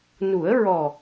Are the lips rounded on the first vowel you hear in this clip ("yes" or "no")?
yes